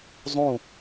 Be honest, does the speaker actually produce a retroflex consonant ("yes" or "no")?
no